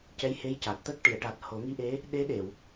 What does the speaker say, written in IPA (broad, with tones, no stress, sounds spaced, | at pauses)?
c ɛ˧˥ j h e˧˥ j c a˨˩ t̚ t̪ ə˦˥ k̚ ʈ i˨˩˨ ə̯ ʈ a˨˩ t̚ h o˨˩˦ ŋ i˧˥ ʔ e˧˥ | ɗ e˧˥ ɗ e˨˩˨ w